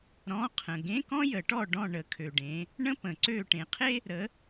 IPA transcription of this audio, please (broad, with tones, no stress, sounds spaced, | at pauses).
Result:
ɾ ɔ̃˧˥˧ qʰ ə̃˨ ɡ ẽ˧˥˧ k ɔ̃˥ j ə˨˩˦ ʈ ɔ˦˨ ɖ ɔ̃˦˨ ɳ ə˨˦ kʰ ø˨ ɖ ẽ˨˦ | ɳ ə̃˥ p ə̃˨˩˦ ǀ ø˦˨ ʈ ẽ˨ qʰ e˥ | ɾ ə˨˦